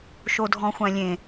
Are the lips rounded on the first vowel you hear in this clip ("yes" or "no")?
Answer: yes